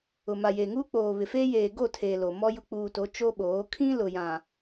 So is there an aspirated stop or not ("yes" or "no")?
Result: yes